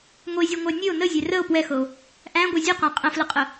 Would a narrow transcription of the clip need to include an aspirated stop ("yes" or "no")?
no